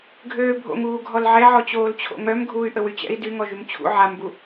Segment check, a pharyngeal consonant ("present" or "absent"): present